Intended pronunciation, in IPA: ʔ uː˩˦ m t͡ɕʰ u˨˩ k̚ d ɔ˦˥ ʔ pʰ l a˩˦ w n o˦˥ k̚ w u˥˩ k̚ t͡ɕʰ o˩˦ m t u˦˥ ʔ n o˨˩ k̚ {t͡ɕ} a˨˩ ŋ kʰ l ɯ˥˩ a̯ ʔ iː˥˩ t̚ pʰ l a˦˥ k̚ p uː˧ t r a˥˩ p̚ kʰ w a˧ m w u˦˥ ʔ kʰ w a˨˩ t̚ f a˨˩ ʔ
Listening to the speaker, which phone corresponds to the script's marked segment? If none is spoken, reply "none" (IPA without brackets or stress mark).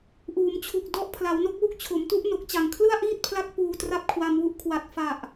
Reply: t͡ɕ